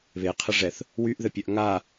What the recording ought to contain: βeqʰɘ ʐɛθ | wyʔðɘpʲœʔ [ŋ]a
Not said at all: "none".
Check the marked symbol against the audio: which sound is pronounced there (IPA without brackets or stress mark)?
ŋ